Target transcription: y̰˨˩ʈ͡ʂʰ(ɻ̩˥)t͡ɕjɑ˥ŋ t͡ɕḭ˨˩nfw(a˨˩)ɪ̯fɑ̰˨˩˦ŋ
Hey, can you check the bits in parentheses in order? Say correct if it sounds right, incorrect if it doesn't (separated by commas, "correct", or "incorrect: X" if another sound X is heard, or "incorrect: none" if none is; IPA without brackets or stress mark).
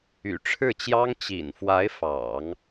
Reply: incorrect: ɻ̩˥˩, incorrect: a˧˥